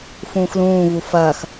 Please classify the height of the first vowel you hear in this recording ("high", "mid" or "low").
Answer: high